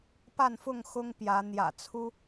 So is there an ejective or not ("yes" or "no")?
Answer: no